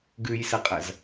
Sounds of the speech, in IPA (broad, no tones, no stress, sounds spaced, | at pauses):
ɡ ʉ j s ɐ qʼ ɐ z